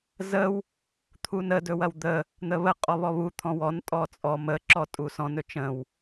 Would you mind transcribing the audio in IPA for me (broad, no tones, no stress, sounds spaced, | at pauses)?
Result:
z ə w | t̪ʰ u n ə d ɵ w ɐ w d̪ ə | n̪ ə β ə qʼ ɔ β ɔ β u t̪ʰ ɔ̃ w ɔ n tʼ ɔ t͡sʼ ɔ m ə ǁ ɔ tʼ u s ɔ̃ n ɵ t͡ʃ ə̃ w